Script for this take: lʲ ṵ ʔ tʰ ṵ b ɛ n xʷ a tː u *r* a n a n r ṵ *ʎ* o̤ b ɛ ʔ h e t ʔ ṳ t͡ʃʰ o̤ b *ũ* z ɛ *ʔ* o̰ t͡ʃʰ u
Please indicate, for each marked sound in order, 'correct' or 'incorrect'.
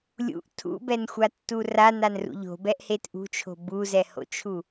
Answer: correct, correct, incorrect, incorrect

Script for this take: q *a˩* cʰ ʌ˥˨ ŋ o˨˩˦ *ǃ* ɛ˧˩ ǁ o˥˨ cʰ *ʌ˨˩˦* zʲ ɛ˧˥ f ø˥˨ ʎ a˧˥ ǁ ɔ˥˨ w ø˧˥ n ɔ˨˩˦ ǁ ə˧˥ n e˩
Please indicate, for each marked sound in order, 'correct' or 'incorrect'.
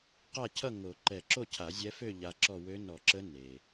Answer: incorrect, correct, incorrect

